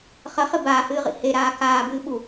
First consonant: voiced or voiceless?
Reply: voiceless